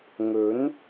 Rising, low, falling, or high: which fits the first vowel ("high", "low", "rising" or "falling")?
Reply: rising